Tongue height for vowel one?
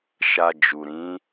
low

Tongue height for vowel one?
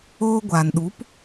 mid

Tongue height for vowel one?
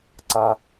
low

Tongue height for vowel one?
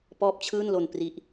mid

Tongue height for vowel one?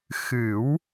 high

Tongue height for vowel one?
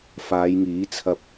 low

